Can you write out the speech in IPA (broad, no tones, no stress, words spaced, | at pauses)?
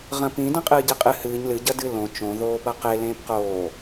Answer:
ʁɐ̃pĩ dɐ̃qʼɨːɟeqʼɨ hɨːɲ lɨ ɟɐdɨlõ t͡ʃõ ðoːpɐqe lẽːpqoː